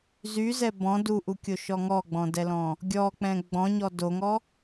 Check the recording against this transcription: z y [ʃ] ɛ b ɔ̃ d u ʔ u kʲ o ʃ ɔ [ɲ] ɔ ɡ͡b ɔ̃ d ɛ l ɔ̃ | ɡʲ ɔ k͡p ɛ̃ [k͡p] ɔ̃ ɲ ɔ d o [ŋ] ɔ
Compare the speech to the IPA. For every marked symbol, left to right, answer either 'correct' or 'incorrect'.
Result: incorrect: z, incorrect: ŋ, incorrect: ɡ͡b, correct

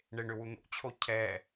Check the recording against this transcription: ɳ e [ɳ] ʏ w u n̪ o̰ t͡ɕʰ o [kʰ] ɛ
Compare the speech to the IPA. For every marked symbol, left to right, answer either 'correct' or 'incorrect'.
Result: correct, incorrect: cʰ

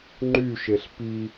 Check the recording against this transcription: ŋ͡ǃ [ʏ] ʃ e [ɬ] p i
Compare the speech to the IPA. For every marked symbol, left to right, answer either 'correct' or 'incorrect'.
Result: incorrect: y, correct

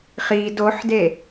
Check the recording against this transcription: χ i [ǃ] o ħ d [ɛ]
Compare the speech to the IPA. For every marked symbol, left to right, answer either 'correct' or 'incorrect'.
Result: incorrect: d, incorrect: e

